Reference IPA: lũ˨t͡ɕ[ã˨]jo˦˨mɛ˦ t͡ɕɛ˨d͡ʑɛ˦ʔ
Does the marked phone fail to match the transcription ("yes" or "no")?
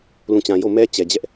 no